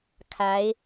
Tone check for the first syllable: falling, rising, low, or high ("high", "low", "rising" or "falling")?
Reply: rising